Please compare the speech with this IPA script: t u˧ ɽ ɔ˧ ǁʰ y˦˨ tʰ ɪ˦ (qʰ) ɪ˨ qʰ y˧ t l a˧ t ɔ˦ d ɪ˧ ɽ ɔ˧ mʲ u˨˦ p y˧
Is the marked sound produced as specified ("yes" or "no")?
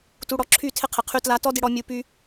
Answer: yes